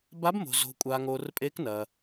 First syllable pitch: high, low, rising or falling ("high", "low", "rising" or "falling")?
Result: rising